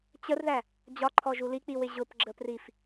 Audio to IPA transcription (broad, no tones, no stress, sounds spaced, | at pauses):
t͡ɕ ə r ð æ | d͡ʑ ɒ ǃʰ ɔ ʒ u l i k͡p i w ɪ ʑ ʊ p ɡ͡ǁ ə p r i f